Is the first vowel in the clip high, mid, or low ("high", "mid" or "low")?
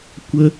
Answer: mid